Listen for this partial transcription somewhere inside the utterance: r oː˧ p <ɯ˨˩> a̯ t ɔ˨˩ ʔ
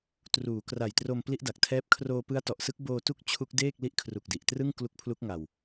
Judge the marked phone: incorrect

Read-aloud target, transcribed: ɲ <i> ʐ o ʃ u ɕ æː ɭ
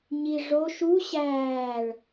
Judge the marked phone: correct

